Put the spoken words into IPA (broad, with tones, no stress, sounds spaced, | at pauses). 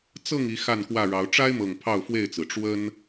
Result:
t͡s ɤ˥˨ ŋ i˨˦ x a˥˨ n k w ä˥˨ ɻ ɑ˨˦ ʊ̯ ʈ͡ʂ a˦ ɪ̯ m ɤ˨˩ ŋ pʰ ɑ˥˨ ʊ̯ f w e˥˨ ɪ̯ t͡s ɹ̩˩ ʈ͡ʂ w ə˦ n